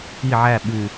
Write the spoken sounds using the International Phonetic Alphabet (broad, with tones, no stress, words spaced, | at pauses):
i˥˨ʕæ˥˨ ɓʉ˨˩